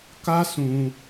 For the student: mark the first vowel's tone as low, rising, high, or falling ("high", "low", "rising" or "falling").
high